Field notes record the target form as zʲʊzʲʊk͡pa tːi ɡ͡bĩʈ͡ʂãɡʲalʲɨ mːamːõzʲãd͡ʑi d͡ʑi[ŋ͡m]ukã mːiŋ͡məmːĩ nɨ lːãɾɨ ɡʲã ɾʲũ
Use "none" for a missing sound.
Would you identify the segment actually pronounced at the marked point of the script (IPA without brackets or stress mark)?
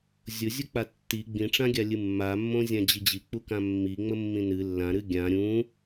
k͡p